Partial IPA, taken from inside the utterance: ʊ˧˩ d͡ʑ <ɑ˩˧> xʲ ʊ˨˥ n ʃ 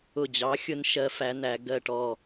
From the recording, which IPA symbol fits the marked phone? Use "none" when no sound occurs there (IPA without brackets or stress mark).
ɑ˨˥